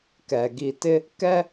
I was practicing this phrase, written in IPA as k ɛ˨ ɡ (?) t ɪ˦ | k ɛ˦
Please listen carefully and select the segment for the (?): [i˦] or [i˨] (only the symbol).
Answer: i˨